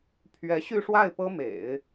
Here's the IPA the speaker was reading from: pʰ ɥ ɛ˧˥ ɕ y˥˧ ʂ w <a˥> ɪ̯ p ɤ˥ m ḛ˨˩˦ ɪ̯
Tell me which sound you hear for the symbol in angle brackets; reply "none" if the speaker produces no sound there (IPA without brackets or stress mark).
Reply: a˥˩